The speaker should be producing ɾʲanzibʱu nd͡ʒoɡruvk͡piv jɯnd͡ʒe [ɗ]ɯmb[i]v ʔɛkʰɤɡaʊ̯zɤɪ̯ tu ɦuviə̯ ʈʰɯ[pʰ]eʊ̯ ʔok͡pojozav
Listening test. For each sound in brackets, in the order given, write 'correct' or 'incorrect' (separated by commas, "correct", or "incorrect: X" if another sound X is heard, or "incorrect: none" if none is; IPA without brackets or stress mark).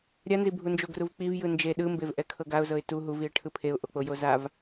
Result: correct, incorrect: e, correct